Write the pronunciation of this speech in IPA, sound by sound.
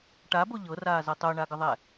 ʈabo ʎɤraːzɤ tˤoɳaɡəðˤɛ

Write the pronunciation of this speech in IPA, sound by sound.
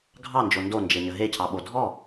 ɡʱɑnd͡ʒo ndond͡ʒeɲə ɦecʰɑɓo dʱɔ

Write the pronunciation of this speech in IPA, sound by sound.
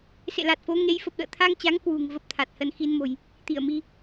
sḛ˧˨la˨˩t̚fo˨˦ ŋe˨˦jfə˨˩p̚ɗə̰ː˧˨ t̪ʰa˧ŋt͡ɕa˨˦ŋ kwṳ˨˩ŋvə˦˥p̚t̪ʰa˨˩t̚ hə˧nxi˧nmo̤˨˩j | t̪i˧˩ə̯mi˧

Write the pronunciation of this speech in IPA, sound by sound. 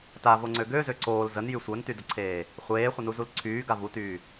tavoŋ͡ǀø ɡøzø ǀoːl zənjy sʷœntydəǀʰeː | χʷeːχʷənuzul ǀʰyːɡa vutyː

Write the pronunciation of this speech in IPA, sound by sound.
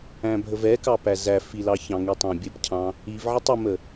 æ̃bʱəvɛ kɑpæzæ filɑçɑ̃ŋi tˤæ̃bʲəpcʰɑ̃ | ivʕətˤ əmə

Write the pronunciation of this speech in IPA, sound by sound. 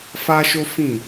fa˦ʃo˦ fĩ˦˨

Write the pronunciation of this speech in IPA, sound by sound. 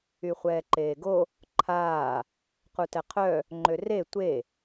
yχʷɛːǃeːɡo | ǃʰaː | qutɛqʰœ | ŋ͡ǃøre tʷe

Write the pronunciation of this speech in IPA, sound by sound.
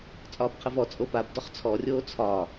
t͡sʼɒːbqʰəvɔ t͡sʼopab dɔχt͡sʰɔ rʲoːt͡sʰɒ

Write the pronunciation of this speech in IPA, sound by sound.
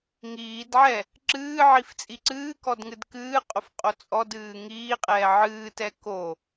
ŋiːdʕɛ | ǁɨːʕif t͡sʼiǀɨːkɔd ŋɨdkɨːqʼof qʼot͡sʼɔdɨː ŋiːqʼɛː ʕɨːtɛ ko

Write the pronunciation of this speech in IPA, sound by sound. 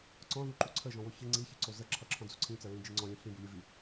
ǀɔ̃ðuǃu ǀʰəʒɔ̃wo çɨ ŋ͡ǀiçiǀo zə ǁʰʌǁʰɔ̃d͡zu ǀʰĩt͡səɹĩd͡ʒɨ ŋ͡ǀɔ̃lʲɔ̃ ɬĩbulʲɨ vi

